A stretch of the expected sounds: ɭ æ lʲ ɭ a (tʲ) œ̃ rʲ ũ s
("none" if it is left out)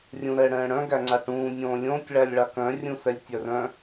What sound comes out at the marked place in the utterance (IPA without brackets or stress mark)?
k